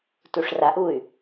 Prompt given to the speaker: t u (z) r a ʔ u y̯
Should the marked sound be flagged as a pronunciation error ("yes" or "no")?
yes